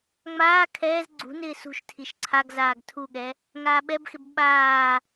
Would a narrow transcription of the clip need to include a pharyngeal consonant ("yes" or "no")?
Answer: no